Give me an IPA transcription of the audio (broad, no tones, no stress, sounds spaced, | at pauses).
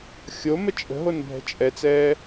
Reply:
xʲ o m ə t͡ʃʼ ə̤ ɦ o n bʱ ɛ̤ t͡ʃʼ ɛ t͡s ɛː